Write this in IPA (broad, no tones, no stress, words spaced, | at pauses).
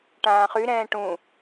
ʈãːχyɾɛ̃ː ʈũ